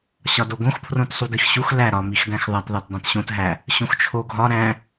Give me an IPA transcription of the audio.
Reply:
ɕɒdoɡõxpʰrõt sˤudixɕux læ ɾɒmixdæ̃x ðˤætðˤæt dˤæ̃tɕõt ɦæ | ɕõxt͡ʃʰo ɡʱɒ ɾæ̃

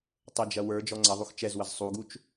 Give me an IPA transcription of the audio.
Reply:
tˤəd͡ʒɐ wə˞ d͡ʒɔŋ͡ǀɐðˤux t͡ʃɛzwəz sˤuɡut͡ʃ

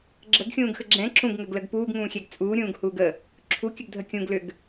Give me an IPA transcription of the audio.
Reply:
ɡ͡ǁəɡxʲũːɡxə ɡ͡ǁɛ̃ ǁũɡŋəɡləɡ puːɡŋũːxʲɛɡ t͡sʼuːɾʲũːɡhuːɡ ə | ǁʰukʲəɡdʱə kʲũɡ lʏɡ

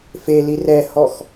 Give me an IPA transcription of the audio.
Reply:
feli rɛhɔx

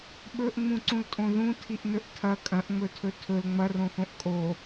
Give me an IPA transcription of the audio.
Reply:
ɓɵʔŋ͡mũǀũltʼõ ðũtʰiʔnɵʔ tʰɐ kʼɐ̃ʔŋ͡mɵtʰɵ tʰɵl ŋ͡mɐrõxõʔ kʼo

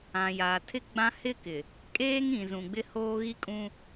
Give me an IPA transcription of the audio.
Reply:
ã˨ja˨tʰɪ˦ ɡ͡bã˦ hɪ˦kɪ˨ | kʼeː˦ŋĩ˨zũ˨ ɡ͡bɪ˦ hoː˦ɣi˦kʼũ˦

